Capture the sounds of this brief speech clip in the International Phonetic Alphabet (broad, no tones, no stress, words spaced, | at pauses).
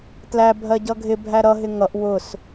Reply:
tlæ bʱɜɟʌɡʱɪ bʱæɾʌ ɦɪŋʌʔ wʊs